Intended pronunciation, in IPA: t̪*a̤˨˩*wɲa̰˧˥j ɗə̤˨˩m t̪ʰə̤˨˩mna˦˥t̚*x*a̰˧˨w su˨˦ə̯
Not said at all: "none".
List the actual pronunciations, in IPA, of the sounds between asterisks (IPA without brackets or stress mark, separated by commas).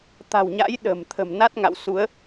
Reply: a̤˨˩, ŋ